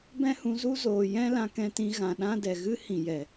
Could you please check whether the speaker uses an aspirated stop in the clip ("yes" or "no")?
no